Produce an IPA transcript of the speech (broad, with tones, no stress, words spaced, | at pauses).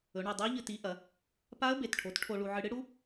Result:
ɵ˩˧ɳɨ˩˧˩dˤɨ˦˥ə̯ʎɨ˧ ti˨˥ʔɐ˩˧ | pa˦˥ə̯ be˩˧˩tʈʰo˨˥tʈʰo˧ɭu˧ ʕɨ˧ɽɨ˦˥ɽu˦˥